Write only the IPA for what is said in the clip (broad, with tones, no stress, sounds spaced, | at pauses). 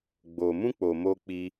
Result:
ɡ͡b o˨ m ũ˧ k͡p o˨ m o˧ k͡p i˧